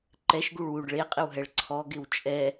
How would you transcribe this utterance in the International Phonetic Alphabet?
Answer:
ǃɛʃɡuɭ wuɖ ɭeqʼɪwɦɛɭ ǀʰɔɡɪw t͡ʃʼɛ

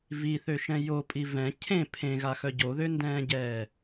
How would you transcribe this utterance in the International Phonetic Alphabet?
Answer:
viθøʃɛ̃ jopʼi vɛ̃ cʰẽ pʰẽɣaxœ ɟoðøndɛ̃ːɟɛː

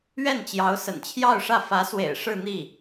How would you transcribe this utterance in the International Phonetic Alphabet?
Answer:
ɥɛ˥˩nt͡ɕjɑ˧˥ʊ̯ sə̰˨˩nt͡ɕʰjɑ˥˧ʊ̯ʂä˥˩ fä˧˥swḛ˨˩ɪ̯ ʂɻ̩˥˧n̪i˥˩

